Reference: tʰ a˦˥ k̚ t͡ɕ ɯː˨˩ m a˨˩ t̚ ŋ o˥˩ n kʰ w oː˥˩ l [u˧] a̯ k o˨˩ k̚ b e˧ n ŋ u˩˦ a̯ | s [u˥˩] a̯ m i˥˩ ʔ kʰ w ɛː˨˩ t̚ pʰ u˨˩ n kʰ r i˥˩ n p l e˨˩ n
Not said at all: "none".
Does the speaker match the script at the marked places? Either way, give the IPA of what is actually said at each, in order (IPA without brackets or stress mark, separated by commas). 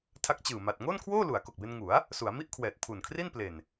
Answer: u˩˦, u˩˦